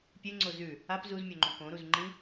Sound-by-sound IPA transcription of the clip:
pʲ ɨ ŋ͡ǀ o z ʉ | a p z u z mʲ o ŋ͡ǃ õ k õ ɾ u z ŋ͡ǃ ĩ

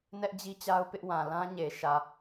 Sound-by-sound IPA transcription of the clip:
n ɛ˦ ʔ d͡ʑ i˦ t͡ɕ a˦ ʊ̯ p ɪ˦ ʔ w ã˨ l ã˦ ɲ e˨ ʃ ä˨

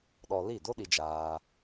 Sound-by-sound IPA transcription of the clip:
ɗ ɔ˧ l i˦˨ d o˦ ɗ i˦ d͡ʒ aː˦

